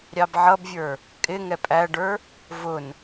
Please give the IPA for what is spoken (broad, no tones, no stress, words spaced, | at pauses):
ɾʲɑbʕʌbvʲə˞ | kʼɪ ŋɛpʼæɖə˞ | vʊn